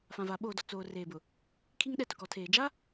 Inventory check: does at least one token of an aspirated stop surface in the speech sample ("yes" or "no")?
yes